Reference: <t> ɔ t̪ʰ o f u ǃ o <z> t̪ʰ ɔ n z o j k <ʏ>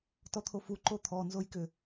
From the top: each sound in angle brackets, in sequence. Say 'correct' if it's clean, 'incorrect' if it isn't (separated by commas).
correct, incorrect, correct